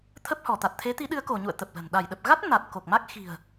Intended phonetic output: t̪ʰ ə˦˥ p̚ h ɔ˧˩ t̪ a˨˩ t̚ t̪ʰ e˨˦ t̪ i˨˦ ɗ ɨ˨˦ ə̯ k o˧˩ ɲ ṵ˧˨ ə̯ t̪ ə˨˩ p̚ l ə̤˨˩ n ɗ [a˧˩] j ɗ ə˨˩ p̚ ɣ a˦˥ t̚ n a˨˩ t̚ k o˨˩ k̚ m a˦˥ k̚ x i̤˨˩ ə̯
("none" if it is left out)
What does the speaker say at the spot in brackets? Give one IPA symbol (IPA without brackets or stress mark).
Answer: a˧˩